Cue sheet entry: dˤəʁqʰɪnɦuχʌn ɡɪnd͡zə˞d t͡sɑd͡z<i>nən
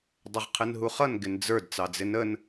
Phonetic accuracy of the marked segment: incorrect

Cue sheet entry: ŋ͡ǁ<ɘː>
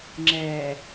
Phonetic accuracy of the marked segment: incorrect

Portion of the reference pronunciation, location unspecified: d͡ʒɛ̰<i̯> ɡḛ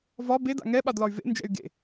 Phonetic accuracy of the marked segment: incorrect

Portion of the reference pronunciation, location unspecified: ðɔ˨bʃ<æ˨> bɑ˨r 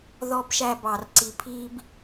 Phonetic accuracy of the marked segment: correct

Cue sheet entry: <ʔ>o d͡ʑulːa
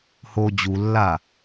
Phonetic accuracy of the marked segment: incorrect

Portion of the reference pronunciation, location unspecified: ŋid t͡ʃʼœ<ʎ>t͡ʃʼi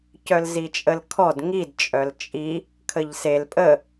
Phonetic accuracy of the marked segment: incorrect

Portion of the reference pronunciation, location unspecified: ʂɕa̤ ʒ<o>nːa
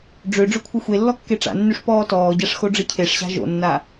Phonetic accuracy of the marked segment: incorrect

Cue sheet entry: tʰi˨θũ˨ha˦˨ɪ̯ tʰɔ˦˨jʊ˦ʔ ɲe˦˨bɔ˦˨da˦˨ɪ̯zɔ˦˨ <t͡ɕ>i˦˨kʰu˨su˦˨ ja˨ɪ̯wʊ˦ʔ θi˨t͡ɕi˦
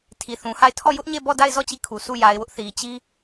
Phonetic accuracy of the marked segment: correct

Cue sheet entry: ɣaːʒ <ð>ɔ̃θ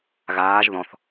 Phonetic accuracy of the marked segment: correct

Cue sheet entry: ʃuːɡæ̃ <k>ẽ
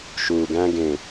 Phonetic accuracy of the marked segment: incorrect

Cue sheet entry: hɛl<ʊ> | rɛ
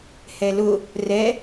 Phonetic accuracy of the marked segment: correct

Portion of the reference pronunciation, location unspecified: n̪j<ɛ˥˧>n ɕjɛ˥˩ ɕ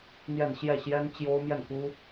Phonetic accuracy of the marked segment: correct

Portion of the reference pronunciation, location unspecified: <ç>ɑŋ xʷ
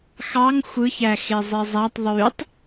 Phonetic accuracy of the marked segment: incorrect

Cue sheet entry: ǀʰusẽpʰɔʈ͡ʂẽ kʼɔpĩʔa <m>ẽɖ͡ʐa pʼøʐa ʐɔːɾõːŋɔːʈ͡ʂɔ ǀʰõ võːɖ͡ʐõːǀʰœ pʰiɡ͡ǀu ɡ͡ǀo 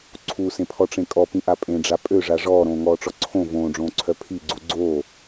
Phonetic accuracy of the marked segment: incorrect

